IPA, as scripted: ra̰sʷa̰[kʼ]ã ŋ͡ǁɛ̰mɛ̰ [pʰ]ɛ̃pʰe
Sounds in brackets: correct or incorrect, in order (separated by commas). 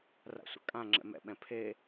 correct, incorrect